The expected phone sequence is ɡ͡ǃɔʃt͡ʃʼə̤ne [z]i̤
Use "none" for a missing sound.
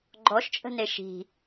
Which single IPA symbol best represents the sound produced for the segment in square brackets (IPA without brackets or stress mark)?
ʃ